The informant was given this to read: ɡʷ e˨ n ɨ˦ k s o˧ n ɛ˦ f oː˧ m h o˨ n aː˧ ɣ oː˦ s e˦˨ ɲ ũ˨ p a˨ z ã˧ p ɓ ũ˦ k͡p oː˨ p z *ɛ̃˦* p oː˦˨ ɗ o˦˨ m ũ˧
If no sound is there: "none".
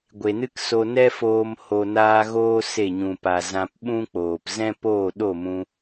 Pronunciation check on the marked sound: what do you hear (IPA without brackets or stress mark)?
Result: ɛ̃˦